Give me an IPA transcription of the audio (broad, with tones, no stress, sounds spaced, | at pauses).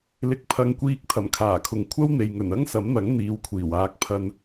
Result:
l ɪ˨ k̚ pʰ ɐ˨˧ ŋ kʷ iː˧ k̚ t̪ʰ ɐ˨˩ m kʰ aː˨˩ kʰ ʊ˨ ŋ kʷʰ ɐ˥ w n̪ e˨ j ŋ ɵ˨˩ n ɐ˥ ŋ s ɐ˨˥ m n̪ ɐ˨˥ ŋ n̪ iː˨˧ w kʷʰ iː˨˩ w aː˧ k̚ pʰ ɐ˧ n